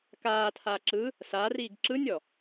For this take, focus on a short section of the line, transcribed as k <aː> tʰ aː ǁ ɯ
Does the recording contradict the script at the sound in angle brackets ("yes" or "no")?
no